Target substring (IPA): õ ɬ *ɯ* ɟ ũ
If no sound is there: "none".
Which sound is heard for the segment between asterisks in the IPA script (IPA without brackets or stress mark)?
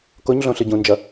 ɯ